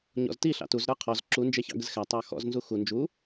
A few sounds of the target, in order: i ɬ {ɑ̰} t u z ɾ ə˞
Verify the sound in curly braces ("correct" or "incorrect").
correct